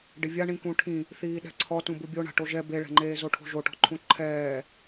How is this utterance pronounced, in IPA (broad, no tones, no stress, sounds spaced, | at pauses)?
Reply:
ɖ ɪ vʲ a ɳ ĩ k ũ ʈʰ ĩ | θ iː ɗ ɛ̤ ǀʰ ɔ t ũ b u bʲ o ɳ a̤ ʈ o ʒ ɛ b e ɭ ɛ̤ ŋ͡ǃ eː z o ʈʰ o̤ ʒ o ʈ ɔ̤ ǃʰ ũ ǃʰ ɛː